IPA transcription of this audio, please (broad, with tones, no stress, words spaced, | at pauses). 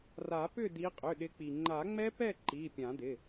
ra˨˩˦pʏ˥˨di˨˦ qʼʏ˩˧˩ɗɪ˨˦k͡pi˩ ŋ͡ǃa˨˩˦ŋ͡mɛ˦˥pɛ˥˨ ǃi˩˧˩ pʲã˨˩˦dɪ˩˧˩